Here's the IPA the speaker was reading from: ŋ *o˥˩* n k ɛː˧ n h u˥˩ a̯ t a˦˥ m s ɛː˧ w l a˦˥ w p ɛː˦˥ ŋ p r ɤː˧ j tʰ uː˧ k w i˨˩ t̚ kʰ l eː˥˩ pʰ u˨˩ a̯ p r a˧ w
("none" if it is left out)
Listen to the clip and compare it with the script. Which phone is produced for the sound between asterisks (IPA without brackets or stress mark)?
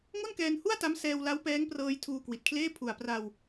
o˥˩